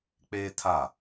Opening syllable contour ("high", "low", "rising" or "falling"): high